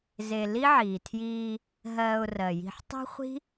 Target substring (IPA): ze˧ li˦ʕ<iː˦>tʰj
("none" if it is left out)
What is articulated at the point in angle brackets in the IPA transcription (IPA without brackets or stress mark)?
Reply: iː˨